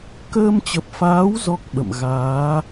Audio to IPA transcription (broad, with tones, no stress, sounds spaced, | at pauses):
k əː˧ m t͡ɕ ə˨˩ p̚ f aː˨˦ w z ɔ˦˥ k̚ ɓ ə̰˧˨ m ɣ aː˨˦